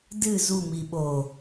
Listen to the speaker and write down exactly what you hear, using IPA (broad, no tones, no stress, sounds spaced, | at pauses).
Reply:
d ɨ z u m i ɓ o